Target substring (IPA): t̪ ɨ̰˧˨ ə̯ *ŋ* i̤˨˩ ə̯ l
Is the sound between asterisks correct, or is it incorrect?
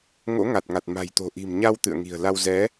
correct